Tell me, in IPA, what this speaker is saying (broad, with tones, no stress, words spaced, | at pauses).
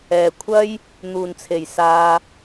ɛː˨˩kʷʰɐ˥j | n̪uː˨˩nt͡sʰe˨˩jsaː˨